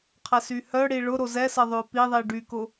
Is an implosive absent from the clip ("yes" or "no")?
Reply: yes